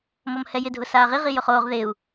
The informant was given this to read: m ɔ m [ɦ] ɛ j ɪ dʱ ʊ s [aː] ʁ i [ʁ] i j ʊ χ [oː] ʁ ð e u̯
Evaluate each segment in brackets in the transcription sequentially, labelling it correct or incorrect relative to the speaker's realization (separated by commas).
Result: incorrect, correct, correct, correct